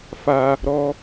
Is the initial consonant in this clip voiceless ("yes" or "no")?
yes